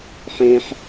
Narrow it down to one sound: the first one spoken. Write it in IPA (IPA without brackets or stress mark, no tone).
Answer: ħ